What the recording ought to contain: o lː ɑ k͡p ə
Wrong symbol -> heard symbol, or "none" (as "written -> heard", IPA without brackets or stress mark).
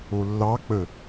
none